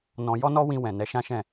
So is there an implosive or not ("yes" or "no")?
no